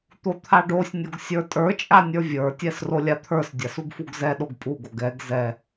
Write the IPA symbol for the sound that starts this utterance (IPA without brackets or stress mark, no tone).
t̪